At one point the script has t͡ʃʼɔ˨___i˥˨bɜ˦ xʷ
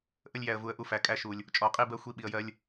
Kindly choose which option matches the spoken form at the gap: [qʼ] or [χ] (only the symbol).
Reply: qʼ